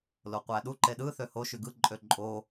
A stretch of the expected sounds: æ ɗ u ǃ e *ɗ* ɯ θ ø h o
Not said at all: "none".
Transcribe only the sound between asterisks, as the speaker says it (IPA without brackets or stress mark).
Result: ɗ